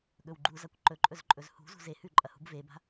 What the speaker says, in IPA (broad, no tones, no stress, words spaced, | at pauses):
ɠɵwɡ͡ǃuzakʷ ǃɵǃʼɵzǃʼɵz hṳ zṳze hʉǃʼɐhṳb veba̤